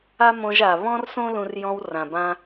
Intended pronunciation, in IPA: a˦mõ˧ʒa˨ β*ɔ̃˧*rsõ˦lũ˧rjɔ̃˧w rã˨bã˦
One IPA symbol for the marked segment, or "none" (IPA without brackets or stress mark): ɔ̃˦